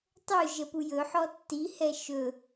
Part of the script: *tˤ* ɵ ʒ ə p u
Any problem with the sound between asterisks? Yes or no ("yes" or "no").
no